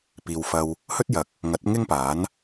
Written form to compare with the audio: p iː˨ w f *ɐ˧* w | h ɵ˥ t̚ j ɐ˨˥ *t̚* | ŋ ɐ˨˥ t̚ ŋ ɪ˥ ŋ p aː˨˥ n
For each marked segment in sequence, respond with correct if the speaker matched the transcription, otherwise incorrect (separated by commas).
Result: correct, incorrect